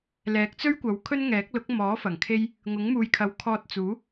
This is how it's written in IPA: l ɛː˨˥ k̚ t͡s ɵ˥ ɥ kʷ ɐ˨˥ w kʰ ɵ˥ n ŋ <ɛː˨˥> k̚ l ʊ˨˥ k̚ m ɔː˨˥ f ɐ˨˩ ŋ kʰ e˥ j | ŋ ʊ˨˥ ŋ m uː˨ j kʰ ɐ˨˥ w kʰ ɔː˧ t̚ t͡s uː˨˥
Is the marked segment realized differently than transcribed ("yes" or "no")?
no